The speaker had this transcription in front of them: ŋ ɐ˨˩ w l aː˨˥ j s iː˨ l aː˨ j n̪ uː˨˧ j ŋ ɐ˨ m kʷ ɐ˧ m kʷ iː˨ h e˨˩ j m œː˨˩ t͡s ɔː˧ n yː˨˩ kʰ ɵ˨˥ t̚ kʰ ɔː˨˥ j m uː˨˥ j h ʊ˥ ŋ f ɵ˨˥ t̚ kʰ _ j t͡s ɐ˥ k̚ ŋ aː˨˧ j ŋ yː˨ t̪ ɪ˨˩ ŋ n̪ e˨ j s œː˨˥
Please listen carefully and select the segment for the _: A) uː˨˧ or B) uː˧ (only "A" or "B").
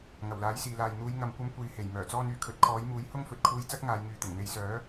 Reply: B